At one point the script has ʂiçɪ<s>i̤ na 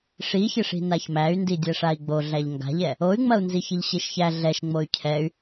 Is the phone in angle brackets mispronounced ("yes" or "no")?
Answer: yes